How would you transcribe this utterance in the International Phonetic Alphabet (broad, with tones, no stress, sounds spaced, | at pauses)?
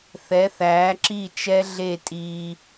θ ɛ˨˦ θ æː˨˦ ǁ i˦˨ t͡ʃ ɛ˦ ɮ e˦˨ tʼ iː˦